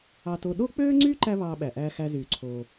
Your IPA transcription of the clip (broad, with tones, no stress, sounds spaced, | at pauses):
ɑ˧ t o˧ ɗ o˥ k͡p øː˥ ŋ͡ǀ y˥ ǃ æ˥ β ɑː˧ ɓ æ˩ ʔ æː˧ x æ˧ z yː˩ ǀʰ oː˩